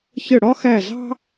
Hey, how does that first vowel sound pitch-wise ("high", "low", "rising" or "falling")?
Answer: falling